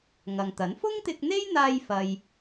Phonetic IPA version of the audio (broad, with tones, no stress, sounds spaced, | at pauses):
ŋ ɐ˨ ŋ t̪ ɐ˨˥ n f ʊ˥ ŋ t̪ ɪ˧ k̚ n̪ e˥ j n̪ aː˧ j f ɐ˥ j